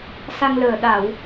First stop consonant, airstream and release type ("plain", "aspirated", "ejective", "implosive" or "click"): implosive